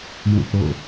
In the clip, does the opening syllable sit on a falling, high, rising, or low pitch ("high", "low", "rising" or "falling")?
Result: falling